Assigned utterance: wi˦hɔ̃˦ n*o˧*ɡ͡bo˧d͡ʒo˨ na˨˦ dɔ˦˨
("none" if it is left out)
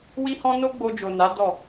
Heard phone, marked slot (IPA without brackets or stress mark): o˦